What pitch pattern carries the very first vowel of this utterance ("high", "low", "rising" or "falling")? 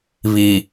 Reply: low